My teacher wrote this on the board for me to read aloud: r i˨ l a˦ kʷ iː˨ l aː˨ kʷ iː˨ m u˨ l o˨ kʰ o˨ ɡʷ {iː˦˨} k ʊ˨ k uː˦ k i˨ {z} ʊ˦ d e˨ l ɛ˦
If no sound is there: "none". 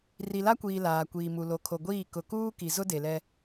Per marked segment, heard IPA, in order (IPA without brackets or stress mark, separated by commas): iː˦˨, z